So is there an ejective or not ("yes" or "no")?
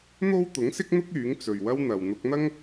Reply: no